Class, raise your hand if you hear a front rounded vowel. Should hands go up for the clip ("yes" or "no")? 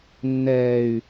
yes